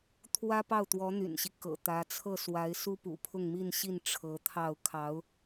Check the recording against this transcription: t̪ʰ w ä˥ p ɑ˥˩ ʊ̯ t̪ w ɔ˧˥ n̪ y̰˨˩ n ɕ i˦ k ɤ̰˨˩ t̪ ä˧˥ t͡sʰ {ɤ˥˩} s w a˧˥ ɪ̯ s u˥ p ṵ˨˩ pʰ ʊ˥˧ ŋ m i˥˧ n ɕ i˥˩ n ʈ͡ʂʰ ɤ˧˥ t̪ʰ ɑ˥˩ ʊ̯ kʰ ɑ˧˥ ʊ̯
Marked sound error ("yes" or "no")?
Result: no